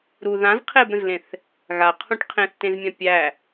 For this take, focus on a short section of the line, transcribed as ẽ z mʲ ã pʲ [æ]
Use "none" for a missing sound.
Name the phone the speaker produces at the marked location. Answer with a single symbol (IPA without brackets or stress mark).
æ